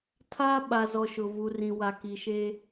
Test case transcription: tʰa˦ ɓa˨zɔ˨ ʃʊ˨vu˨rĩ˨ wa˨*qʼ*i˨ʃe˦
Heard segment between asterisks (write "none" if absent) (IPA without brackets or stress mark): k